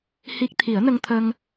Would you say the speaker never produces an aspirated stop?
no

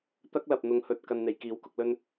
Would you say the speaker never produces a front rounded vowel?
yes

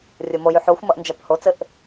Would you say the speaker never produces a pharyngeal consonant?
no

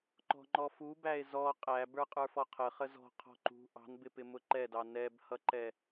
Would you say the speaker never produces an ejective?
no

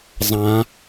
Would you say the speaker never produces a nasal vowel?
no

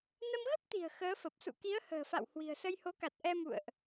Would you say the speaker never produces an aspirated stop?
yes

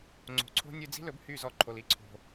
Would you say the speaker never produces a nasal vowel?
yes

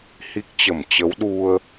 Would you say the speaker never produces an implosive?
no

